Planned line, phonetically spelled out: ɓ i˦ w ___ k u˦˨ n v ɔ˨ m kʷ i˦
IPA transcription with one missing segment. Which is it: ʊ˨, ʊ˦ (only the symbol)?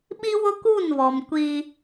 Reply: ʊ˦